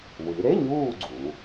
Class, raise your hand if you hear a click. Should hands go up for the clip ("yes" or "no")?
yes